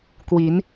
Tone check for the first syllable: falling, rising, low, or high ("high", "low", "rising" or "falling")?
rising